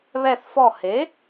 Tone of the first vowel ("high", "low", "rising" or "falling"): falling